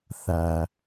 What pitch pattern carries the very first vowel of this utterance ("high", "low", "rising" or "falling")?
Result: low